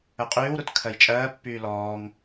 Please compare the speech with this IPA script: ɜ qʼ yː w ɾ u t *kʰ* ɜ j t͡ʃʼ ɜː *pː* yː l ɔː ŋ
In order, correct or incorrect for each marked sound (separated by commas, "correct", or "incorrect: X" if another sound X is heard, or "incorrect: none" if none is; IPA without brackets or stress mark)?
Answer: correct, correct